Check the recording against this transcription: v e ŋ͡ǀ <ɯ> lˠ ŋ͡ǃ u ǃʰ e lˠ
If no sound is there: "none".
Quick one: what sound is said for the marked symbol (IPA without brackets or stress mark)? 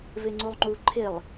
u